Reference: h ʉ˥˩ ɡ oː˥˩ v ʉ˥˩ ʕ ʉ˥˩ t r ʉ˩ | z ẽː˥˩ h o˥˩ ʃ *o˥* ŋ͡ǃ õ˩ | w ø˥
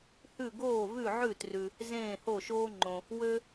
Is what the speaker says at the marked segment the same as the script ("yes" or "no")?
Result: no